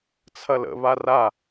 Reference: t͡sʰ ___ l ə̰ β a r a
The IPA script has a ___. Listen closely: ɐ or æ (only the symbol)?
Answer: ɐ